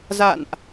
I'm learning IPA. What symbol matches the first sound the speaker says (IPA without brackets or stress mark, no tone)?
z